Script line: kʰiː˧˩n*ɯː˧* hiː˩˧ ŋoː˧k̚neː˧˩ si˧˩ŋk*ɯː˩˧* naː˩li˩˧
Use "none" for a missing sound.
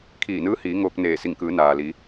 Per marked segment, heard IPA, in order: ɯː˧˥, ɯː˩˧

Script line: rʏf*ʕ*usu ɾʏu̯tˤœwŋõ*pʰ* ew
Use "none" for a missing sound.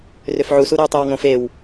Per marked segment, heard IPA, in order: ʕ, f

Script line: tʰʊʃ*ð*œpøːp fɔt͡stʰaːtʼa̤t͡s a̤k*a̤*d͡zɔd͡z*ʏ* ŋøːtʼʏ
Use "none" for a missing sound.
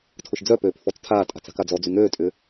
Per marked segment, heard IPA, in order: d͡z, a, y

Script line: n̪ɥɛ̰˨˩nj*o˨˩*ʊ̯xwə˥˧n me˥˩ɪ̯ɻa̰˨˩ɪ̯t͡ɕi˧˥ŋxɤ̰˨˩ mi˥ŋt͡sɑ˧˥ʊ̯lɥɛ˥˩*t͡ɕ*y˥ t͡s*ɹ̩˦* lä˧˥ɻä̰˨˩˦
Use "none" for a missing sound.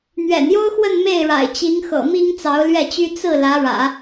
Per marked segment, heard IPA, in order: o˥, t͡ɕ, ɹ̩˥˩

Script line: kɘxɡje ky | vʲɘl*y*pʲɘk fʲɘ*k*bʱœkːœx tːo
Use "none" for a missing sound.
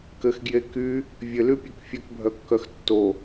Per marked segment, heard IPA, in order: y, k

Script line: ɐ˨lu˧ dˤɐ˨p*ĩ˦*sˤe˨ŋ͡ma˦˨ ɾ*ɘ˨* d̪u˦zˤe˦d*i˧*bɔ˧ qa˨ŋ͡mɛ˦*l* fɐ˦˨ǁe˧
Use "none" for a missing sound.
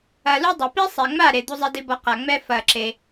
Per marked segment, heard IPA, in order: i˦, e˨, i˦, none

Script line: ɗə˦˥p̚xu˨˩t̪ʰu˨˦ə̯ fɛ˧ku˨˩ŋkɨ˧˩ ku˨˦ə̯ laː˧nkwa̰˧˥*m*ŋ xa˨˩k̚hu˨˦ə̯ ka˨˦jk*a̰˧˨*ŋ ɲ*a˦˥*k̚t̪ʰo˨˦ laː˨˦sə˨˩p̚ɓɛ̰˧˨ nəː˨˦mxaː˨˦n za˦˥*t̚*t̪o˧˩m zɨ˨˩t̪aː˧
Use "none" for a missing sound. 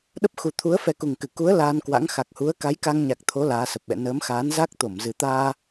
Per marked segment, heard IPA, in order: none, a˧, a˨˩, k̚

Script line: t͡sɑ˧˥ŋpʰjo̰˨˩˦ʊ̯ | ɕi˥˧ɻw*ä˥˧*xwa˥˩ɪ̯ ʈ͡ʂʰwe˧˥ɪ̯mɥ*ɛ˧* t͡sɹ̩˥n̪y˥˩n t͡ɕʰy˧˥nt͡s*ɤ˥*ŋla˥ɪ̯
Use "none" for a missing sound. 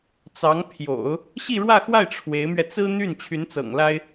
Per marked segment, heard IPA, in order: ä˥˧, ɛ˧, ɤ̰˨˩

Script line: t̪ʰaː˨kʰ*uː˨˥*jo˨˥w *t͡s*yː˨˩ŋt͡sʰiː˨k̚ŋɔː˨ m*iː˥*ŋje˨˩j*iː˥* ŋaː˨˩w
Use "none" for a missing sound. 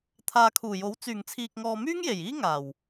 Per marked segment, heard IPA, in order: uː˨˩, t͡s, yː˥, iː˥

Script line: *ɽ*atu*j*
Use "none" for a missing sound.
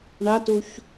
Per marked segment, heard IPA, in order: ɳ, ç

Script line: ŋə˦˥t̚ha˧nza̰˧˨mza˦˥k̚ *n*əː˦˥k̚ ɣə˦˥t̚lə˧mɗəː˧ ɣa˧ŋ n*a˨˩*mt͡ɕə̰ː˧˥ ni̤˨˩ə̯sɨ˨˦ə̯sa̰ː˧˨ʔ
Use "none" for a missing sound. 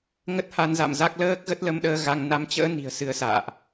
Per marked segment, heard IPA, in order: l, a˨˦

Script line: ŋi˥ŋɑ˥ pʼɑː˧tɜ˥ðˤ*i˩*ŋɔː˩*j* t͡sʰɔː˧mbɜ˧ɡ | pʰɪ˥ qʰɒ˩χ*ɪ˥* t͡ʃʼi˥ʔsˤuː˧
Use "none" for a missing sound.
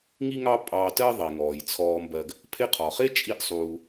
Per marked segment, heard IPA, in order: i˩, j, ɪ˥

